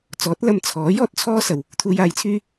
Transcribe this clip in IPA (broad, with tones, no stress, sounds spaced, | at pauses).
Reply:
t͡s ɔː˨˥ t̚ l ɐ˧ m t͡sʰ ɔː˨˥ j ɔː˥ t̚ t͡sʰ ɔː˥ s ɐ˨ w | t̪ʰ uː˨ j aː˨˧ j t͡sʰ yː˧